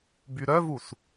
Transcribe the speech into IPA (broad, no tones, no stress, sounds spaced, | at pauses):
b y ɾ œ v u s